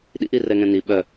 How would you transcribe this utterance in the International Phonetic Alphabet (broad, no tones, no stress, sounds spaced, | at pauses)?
ɗ ḭ ʔ i r ɛ ŋ ɛ̃ n i ɓ œ